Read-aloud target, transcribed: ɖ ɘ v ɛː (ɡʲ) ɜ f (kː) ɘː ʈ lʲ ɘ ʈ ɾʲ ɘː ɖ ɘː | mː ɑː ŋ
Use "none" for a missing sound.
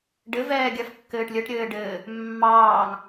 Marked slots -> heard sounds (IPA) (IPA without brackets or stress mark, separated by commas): ɡʲ, kː